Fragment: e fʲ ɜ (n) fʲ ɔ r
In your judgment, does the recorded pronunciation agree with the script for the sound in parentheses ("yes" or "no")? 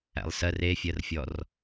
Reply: no